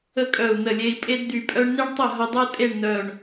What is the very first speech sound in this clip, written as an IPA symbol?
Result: ə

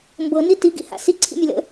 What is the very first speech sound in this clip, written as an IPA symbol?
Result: m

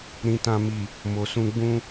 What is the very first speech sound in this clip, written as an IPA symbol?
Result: ɾ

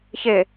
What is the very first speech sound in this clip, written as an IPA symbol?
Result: ç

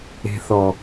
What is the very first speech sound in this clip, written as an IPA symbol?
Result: e̤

